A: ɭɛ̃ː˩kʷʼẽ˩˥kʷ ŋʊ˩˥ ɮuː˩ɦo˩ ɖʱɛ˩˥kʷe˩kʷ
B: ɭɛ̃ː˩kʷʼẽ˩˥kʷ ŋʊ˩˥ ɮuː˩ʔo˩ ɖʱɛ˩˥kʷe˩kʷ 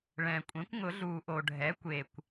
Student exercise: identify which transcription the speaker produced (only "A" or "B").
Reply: B